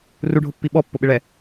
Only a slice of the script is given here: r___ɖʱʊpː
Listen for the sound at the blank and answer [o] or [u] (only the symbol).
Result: u